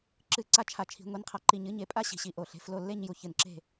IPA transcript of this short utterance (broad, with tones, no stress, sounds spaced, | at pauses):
ǁ ɨ˥˨ ǀ a˥˨ t͡ʃʰ a˧˩ t͡ʃʰ i̤˩˥ ŋʷ i˩˥ n qʰ a˧˩ ǃ i˧˩ ɲ ɨ˩˥ ɲ e˩˥ pʼ a˥˨ ɕ i̤˧˩ ɕ i˧˩ ʔ o˧˩ ɬ e̤˩˥ f l o˧˩ lː e˥˨ ɲ j u˧˩ ç ɨ˧˩ n ǁ e̤˥˨